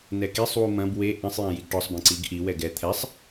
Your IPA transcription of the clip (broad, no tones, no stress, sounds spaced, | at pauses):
n ɛ k i sˤ w u m ɐ̃ b w e ʔ ɛ̃ sˤ j ã j i ɡ ʈ ɔ sˤ b ɛ̃ ǀ i ɡ ʔ i w ɛ ɡ ɛ t̪ʰ ɛ sˤ